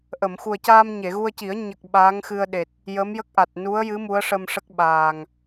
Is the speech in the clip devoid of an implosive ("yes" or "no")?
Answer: no